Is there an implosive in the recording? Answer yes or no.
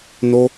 no